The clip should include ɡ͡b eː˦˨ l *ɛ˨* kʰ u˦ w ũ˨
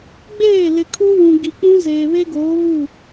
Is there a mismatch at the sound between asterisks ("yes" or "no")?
yes